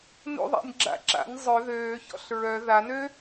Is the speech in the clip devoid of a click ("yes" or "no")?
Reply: no